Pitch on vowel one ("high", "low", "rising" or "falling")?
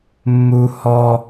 high